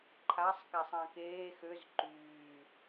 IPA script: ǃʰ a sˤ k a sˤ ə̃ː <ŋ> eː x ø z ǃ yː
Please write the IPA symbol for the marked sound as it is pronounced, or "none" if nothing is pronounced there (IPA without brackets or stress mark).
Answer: k